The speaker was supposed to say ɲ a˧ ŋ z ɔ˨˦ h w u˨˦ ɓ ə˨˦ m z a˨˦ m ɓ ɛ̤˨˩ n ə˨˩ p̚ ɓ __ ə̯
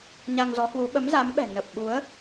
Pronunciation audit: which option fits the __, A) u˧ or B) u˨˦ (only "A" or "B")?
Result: B